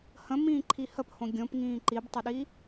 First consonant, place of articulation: glottal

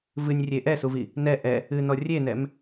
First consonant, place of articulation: labial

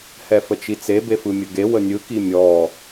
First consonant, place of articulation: glottal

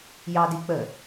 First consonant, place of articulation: palatal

